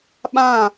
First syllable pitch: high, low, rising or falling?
falling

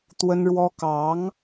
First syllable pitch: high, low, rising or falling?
high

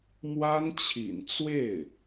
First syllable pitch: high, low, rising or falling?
high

